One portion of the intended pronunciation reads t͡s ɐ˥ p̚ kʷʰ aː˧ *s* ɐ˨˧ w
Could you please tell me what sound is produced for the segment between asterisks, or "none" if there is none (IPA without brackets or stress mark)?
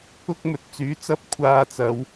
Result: t͡s